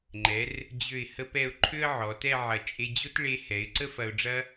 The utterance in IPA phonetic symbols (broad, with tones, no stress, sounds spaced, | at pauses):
ŋ͡ǃ ɛ˩˧ r | d͡ʑ ø˧˩ ɪ̯ h ə˧ p ɛ˧˩ ʊ̯ ǃʰ ø˥ ə̯ ʕ ɔ˩˧ t ɛ˥˧ ʕ ɐ˧˩ t͡ʃʼ e˧ d͡ʑ o˥ t ɭ e˧ h ɛ˩˧ ɪ̯ ǀ ə˥ f ɐ˧ ʊ̯ ɖ͡ʐ ɐ˥